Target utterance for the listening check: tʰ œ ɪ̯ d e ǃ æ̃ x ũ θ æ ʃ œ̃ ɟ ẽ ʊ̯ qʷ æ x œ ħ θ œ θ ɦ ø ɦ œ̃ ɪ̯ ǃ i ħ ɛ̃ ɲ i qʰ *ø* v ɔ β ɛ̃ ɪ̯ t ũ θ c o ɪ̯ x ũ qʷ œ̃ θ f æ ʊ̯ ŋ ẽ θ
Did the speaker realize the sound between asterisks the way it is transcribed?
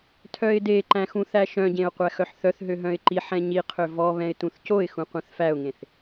yes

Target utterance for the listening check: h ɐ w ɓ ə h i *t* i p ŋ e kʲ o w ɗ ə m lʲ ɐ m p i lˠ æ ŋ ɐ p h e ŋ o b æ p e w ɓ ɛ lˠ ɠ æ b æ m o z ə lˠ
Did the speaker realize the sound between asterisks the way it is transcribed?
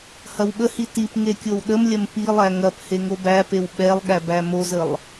yes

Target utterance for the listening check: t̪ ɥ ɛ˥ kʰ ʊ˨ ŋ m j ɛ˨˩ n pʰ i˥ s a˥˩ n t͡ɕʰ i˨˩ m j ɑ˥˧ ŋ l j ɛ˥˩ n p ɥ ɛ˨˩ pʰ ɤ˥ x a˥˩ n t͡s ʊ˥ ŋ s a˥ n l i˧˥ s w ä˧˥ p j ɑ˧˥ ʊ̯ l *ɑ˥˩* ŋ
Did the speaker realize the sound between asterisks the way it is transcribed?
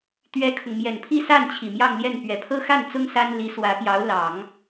no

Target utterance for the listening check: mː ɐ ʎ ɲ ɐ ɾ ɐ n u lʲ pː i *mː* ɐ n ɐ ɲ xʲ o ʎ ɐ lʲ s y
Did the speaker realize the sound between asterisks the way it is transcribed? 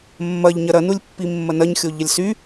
yes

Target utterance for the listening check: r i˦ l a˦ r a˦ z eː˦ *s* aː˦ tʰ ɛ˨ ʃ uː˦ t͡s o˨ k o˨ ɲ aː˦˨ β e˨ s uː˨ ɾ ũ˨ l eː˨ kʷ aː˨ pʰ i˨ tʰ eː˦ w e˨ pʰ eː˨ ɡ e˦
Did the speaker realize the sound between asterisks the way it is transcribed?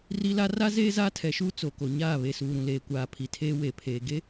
no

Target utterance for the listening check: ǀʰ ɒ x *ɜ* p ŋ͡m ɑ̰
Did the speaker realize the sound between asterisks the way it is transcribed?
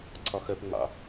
yes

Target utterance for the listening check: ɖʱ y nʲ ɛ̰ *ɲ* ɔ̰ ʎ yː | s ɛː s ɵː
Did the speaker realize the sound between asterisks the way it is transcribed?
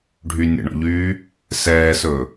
no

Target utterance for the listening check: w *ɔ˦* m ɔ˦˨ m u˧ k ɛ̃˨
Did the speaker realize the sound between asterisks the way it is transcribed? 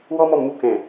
yes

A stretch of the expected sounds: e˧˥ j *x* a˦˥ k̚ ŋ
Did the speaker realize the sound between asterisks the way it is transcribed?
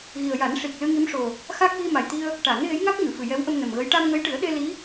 no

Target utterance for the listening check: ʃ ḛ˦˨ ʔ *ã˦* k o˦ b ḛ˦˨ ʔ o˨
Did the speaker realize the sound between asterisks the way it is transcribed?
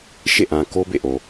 no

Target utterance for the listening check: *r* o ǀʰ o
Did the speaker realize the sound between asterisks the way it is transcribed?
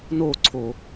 no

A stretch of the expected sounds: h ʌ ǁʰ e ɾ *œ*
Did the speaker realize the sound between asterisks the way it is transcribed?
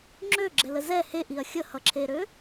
no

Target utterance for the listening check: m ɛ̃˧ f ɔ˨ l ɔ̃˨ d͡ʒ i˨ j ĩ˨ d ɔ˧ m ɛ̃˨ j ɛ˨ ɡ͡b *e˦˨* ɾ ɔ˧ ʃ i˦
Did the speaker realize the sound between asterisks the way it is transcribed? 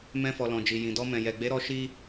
no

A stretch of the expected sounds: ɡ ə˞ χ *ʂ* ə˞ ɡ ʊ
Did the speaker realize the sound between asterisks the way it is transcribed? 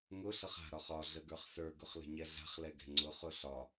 no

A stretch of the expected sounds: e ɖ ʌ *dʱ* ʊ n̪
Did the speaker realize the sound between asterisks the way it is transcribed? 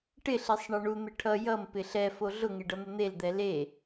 no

